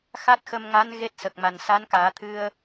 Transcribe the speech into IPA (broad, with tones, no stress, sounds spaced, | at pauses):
x a˦˥ t̚ x ə˧ m ŋ a˧˥ n ɣ e˦˥ t̚ s ə˨˩ k̚ m a˨˩ n s a˧˥ n k aː˨˩˦ t̪ʰ ɨ˧ ə̯